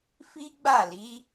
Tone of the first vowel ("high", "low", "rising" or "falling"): high